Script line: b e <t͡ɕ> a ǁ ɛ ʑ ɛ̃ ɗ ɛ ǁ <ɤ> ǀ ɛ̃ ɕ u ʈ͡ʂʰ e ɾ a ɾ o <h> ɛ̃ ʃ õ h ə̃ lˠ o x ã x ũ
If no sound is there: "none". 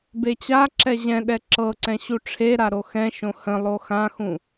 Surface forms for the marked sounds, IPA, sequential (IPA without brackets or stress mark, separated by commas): t͡ɕ, ɤ, x